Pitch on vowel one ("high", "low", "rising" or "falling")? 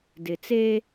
low